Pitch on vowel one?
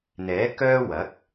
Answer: rising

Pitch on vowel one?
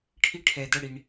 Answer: high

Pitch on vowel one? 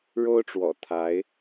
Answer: high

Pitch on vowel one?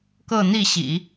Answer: falling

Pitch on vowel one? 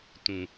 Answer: low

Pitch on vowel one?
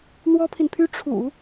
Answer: high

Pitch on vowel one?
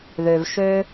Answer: low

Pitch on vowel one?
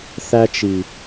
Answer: high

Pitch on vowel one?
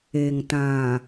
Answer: low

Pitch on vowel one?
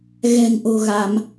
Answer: low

